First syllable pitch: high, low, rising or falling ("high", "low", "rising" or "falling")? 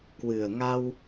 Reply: low